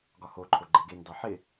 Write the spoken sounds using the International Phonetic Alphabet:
ɡɒhoǃʰo ɡ͡ǃeɡendɑ ħɪ

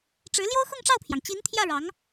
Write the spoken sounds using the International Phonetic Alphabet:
ʈ͡ʂɻ̩˧˥ ljo˥ʊ̯xʊ˥˧ŋʈ͡ʂɑ˥˩ʊ̯pʰjɑ˩ŋ t͡ɕi˧˥nt̪ʰjä˥˩ ɻɑ˧˥ŋ

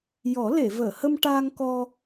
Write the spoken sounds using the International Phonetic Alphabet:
jɔ˨˩˦le˨˩˨vəː˨˩˨hə˧m ʈaː˧ŋkɔ˧

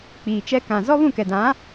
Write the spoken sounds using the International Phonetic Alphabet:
k͡piː˨t͡ʃɛ˦ kã˨ zɔ˦βũ˦˨kɛ˨dã˨˦

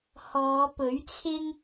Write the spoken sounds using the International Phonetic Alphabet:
hɔː˨˧pɵ˨˥ɥt͡sʰɪ˥ŋ

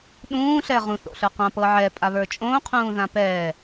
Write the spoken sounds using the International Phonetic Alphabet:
ɗũː ɬɛʁũθ o̰ɬə˞qã pɤʕɛ pʼaβə˞t͡ʃʼõː qʰũːðãpɛː

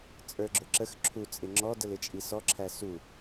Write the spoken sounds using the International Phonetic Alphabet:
t͡sʼə˞ɡ͡ǁʊǁəx ǁʰu t͡sʼɪŋ͡ǁɔ dəlɪt͡ʃʼisɔ ǁʰæsu

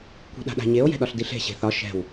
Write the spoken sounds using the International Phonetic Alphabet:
kʷi̤ɗa̤ɗa̤ɲeo̯ jɛ̤ɗɒɬdiɬe̤ ɕe̤θɒ ʃɛ̤w

